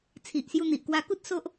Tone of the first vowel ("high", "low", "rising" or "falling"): low